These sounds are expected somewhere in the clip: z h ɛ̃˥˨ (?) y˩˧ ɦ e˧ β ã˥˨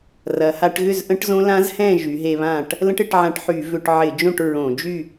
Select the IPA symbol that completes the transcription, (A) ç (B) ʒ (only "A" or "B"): B